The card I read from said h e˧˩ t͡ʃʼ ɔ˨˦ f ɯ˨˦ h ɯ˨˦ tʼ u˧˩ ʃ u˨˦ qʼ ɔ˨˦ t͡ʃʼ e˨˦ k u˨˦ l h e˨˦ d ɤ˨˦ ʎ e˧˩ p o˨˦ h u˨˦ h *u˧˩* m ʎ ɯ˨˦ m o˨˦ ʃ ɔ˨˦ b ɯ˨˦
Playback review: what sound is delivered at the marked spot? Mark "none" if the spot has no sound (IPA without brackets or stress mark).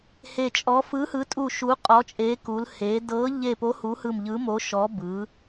ɯ˧˩